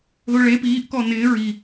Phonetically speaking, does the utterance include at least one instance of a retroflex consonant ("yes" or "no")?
yes